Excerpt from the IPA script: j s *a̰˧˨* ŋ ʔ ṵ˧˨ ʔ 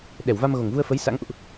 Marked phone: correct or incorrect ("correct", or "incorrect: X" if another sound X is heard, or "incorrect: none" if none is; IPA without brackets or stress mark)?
incorrect: a̰˧˥